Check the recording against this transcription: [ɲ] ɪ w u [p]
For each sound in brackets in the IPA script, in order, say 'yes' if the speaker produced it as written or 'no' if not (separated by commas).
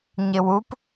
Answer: yes, yes